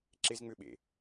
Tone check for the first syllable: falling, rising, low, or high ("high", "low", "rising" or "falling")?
high